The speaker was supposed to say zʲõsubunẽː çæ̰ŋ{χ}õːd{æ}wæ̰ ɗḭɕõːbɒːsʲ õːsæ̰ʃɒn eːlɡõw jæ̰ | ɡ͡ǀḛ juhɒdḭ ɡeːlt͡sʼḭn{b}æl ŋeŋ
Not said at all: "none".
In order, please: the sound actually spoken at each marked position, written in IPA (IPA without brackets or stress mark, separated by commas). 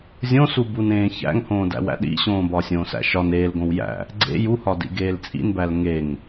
h, æ̰, b